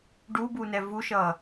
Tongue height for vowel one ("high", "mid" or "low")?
high